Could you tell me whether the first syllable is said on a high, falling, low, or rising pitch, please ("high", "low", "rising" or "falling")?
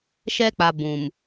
high